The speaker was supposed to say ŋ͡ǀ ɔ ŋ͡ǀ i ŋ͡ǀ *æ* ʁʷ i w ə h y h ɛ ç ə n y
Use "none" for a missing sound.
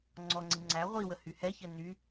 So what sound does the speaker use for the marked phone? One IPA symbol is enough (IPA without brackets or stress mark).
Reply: æ